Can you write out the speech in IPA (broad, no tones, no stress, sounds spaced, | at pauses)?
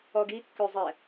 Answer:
ɔ ɡ i kː ø zˤ ɛ